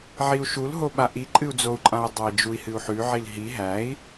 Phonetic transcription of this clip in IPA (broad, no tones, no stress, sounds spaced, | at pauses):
ʕ i u̯ ʃ u l ɦ o ɓ a ʔ i ǃʼ ɨ u̯ d͡z o u̯ ǃʼ ã u̯ dˤ œ i̯ d͡ʒ u i̯ h ɨ u̯ ħ ʉ ʕ i l ɦ i ɦ æ i̯